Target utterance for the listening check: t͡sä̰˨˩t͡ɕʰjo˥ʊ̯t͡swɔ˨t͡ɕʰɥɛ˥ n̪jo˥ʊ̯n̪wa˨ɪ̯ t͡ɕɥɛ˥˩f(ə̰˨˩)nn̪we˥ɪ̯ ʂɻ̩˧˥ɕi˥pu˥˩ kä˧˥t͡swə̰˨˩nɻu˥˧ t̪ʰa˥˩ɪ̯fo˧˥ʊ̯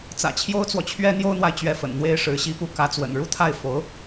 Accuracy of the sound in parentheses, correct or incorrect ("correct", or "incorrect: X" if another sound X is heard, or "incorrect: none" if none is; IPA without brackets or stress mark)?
correct